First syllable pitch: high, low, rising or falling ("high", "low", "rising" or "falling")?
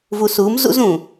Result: low